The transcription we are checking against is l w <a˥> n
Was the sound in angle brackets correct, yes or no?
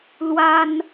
yes